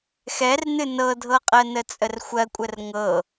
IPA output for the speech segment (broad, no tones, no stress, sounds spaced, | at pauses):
x ɛ r n ɨ n ɤ dʱ ɤ qʼ ɜ n ə t͡sʼ ə r xʷ ɜ kʷʼ ə r ŋ ɤ